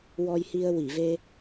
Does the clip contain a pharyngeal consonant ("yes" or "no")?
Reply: no